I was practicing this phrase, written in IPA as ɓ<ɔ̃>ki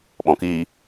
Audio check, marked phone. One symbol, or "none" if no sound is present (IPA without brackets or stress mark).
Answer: ɔ̃